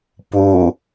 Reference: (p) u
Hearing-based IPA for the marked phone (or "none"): p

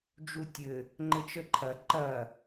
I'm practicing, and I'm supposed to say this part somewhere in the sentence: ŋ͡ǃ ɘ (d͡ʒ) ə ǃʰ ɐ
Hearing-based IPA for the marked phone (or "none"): t͡ʃ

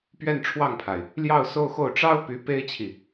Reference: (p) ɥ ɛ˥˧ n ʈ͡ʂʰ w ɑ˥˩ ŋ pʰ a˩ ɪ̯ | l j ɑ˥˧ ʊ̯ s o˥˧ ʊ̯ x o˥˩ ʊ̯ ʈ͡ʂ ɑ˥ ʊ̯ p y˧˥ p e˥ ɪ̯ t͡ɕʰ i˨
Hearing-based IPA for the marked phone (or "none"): p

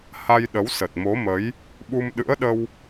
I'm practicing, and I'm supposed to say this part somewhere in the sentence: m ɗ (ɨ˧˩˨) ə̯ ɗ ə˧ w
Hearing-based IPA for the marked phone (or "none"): ɨ̰˧˥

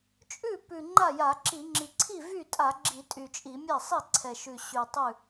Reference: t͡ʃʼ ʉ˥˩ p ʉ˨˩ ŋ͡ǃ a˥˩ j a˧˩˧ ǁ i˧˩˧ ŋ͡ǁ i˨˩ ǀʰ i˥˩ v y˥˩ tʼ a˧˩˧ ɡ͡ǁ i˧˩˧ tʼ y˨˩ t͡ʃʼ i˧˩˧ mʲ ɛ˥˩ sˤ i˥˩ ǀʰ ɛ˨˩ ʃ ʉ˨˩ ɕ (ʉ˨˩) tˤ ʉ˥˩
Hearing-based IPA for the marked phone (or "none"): ʉ˨˩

